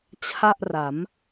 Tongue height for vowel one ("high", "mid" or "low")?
low